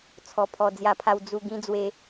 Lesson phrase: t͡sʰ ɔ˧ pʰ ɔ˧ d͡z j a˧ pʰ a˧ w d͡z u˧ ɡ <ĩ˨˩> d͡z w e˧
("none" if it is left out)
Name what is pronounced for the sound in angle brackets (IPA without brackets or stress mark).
ĩ˦